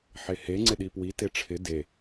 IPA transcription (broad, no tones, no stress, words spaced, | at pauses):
ħehe ŋ͡ǀɪɗipwi teʈ͡ʂʰɪ de